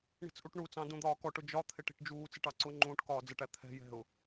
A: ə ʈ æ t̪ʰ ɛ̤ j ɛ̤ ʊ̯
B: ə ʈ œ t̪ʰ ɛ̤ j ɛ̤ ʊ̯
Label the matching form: A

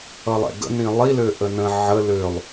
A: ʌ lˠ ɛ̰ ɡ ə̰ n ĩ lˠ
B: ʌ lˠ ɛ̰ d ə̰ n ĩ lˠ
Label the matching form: A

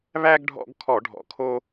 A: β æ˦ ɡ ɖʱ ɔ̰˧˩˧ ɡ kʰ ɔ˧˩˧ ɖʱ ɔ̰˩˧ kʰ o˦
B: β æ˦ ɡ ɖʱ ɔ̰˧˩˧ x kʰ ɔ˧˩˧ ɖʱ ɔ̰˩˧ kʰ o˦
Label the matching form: A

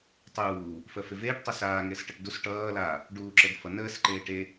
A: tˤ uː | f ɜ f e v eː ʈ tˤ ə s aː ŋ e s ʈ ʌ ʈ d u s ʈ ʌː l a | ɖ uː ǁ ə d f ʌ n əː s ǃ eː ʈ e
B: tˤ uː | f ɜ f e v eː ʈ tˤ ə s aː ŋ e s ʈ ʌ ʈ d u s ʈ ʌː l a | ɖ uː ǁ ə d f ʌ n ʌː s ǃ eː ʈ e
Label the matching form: A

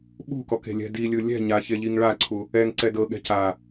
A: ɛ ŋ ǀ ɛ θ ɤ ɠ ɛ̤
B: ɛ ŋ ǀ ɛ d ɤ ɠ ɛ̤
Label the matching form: B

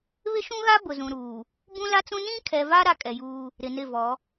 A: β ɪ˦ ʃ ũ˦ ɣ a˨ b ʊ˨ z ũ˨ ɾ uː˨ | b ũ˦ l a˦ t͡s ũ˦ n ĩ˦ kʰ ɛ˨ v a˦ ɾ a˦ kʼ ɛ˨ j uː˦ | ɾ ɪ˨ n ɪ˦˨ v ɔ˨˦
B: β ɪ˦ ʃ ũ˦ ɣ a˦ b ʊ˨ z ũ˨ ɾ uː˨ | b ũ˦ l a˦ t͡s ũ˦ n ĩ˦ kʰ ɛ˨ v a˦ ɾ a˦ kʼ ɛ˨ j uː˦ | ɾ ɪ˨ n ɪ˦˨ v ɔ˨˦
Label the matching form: B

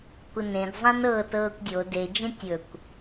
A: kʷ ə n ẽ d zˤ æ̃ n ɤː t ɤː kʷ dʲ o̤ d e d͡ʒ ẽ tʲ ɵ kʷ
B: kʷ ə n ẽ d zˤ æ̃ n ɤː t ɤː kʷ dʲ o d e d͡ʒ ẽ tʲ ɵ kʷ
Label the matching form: B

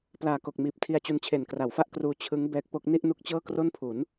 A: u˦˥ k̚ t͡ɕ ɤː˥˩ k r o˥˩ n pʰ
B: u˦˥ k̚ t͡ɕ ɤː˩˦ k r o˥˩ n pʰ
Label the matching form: A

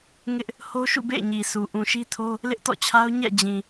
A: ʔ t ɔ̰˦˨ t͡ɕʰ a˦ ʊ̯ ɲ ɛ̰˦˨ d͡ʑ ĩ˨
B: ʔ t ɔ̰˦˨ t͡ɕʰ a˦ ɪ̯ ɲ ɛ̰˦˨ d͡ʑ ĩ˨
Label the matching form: A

